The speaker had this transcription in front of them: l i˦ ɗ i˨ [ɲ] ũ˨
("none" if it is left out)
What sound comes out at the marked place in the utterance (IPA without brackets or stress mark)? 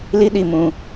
m